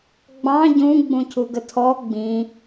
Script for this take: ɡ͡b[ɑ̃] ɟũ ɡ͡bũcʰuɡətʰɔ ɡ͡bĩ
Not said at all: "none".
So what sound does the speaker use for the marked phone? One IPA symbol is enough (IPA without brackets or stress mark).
ɑ̃